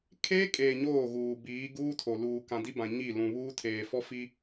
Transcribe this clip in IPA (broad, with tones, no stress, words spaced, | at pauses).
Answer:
kʰeː˦kʼeː˨ ɲoː˦˨ɣuː˨ biː˨˦ ɡuː˦tʰo˨ luː˨kã˨di˦bã˨ ɲi˦˨ lũ˨βuː˦ tʰeː˨ fɔ˦fi˦